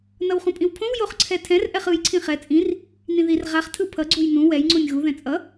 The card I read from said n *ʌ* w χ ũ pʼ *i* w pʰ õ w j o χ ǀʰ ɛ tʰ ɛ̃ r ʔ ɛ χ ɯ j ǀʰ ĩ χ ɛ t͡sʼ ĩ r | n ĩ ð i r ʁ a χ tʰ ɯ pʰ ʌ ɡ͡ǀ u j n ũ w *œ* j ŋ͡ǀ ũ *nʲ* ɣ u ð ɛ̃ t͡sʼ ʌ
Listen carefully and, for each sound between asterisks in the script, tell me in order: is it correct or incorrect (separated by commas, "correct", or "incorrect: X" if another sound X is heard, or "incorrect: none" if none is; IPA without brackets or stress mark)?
correct, incorrect: ĩ, incorrect: ɛ, correct